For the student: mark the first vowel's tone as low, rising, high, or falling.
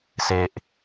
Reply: low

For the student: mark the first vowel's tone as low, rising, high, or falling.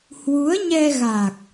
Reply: rising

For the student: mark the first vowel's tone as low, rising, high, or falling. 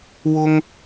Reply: high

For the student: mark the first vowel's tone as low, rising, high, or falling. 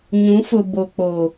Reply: rising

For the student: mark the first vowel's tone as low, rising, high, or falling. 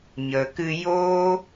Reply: low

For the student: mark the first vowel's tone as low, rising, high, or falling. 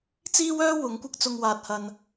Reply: high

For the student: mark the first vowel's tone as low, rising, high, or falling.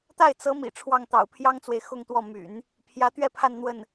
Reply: falling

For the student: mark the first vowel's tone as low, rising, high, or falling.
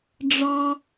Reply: high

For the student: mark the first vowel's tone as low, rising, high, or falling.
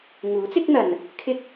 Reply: rising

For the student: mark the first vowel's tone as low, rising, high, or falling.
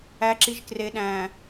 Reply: low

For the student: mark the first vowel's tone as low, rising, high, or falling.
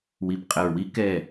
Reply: low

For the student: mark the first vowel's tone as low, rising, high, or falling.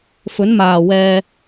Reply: rising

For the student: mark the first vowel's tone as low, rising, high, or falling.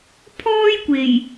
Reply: high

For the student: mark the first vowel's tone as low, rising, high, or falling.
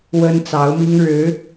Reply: high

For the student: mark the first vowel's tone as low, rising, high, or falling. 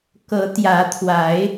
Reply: rising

